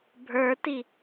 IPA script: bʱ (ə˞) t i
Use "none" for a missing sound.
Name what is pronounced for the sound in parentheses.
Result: ə˞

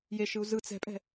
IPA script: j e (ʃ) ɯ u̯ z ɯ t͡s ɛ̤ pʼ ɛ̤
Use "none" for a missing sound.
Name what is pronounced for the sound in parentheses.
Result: ʃ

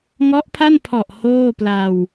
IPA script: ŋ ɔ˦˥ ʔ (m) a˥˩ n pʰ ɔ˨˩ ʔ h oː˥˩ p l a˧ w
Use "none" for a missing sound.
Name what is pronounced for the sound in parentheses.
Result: pʰ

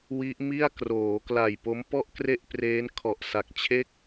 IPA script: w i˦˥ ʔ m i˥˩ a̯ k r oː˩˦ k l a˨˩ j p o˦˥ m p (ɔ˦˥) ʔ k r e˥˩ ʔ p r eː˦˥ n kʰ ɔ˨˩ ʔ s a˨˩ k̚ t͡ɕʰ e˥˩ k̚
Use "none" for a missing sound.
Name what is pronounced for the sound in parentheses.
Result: ɔ˥˩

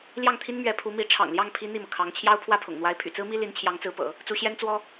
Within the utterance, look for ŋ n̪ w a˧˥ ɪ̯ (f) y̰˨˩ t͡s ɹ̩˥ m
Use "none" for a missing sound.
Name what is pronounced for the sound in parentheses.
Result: pʰ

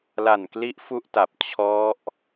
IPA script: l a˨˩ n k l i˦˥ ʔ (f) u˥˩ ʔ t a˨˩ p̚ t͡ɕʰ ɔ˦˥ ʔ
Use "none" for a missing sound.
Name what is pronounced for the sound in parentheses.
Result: f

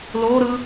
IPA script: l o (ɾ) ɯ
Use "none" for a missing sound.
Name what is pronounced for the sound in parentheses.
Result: ɾ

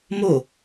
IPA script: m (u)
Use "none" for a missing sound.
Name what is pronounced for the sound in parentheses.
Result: o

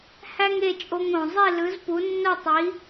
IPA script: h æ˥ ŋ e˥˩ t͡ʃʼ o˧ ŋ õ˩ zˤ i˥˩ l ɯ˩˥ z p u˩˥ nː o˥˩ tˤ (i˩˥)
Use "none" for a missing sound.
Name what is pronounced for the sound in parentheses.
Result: i˩˥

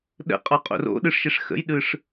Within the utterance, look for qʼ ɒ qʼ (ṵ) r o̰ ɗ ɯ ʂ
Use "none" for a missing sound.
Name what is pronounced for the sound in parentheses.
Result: o̰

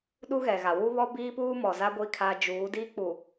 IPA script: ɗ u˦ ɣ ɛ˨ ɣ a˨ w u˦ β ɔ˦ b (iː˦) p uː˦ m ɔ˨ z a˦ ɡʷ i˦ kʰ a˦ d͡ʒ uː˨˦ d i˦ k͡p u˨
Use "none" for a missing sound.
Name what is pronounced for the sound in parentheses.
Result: iː˦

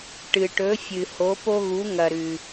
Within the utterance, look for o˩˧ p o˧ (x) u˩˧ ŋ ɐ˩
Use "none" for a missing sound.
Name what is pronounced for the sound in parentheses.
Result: ɣ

